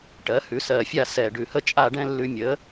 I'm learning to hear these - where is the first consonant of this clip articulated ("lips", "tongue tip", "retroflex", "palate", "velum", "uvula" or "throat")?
retroflex